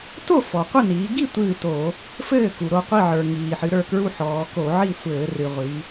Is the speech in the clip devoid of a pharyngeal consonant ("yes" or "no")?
no